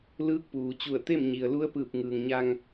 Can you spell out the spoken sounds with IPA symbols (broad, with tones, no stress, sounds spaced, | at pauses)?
l ɯː˧˥ k̚ p uː˩ t͡ɕ u˧˩ ə̯ t̪ e˥˨ m ɲ i˩ ə̯ l u˧˥ ə̯ p ɯː˧˩ p̚ ŋ ɯː˩ ŋ ɲ a˧ ŋ